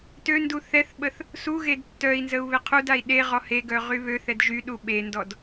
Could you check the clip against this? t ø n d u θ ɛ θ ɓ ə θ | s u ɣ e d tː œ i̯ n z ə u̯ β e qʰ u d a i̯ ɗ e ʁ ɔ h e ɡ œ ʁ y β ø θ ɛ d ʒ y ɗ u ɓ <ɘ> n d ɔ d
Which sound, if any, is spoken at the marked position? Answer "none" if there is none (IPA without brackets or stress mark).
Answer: e